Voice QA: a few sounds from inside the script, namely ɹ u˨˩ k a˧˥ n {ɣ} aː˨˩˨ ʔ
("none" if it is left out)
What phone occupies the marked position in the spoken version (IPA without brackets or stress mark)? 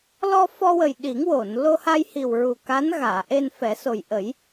ɣ